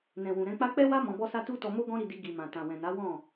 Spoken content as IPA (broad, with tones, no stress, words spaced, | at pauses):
nɛ̃˨wũ˨ ɾɛ̃˧k͡pa˦ k͡pɛ˦wa˦ mɔ̃˧bɔ˦sa˦ tu˦tɔ˧mo˦ ɡɔ̃˦ɾi˧di˧ ɡi˨mã˨tã˨ wɛ̃˨na˨˦ wɔ̃˦˨